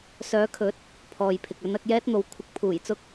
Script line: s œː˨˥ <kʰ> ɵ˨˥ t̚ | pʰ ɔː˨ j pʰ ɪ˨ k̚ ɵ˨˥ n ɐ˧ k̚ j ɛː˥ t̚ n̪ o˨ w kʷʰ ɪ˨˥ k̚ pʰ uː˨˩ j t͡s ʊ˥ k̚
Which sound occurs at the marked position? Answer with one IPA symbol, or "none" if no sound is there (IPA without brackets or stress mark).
kʰ